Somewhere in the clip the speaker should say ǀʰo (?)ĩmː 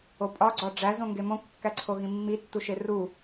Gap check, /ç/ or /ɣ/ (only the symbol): ɣ